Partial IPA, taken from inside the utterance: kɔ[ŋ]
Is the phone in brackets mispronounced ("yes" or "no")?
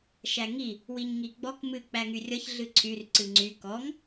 no